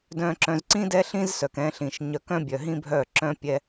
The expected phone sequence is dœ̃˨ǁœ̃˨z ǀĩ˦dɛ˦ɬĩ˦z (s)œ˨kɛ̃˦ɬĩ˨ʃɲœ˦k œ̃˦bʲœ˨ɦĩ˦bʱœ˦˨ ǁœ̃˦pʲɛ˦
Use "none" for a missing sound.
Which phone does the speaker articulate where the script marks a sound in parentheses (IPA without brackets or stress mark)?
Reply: s